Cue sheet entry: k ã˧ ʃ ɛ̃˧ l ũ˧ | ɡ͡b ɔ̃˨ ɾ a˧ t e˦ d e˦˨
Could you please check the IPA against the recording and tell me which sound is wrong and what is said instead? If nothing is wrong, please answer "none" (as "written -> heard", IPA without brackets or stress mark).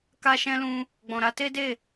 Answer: ã˧ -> a˧